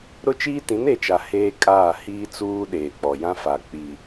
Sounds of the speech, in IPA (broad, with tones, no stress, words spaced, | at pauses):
ɾʊ˦t͡ʃiː˦tĩ˨˦n e˨t͡ʃa˨ heː˦kʼaː˦˨ hiː˦t͡suː˦ ɗeː˨k͡pɔ˨ jã˦fa˨ k͡pi˨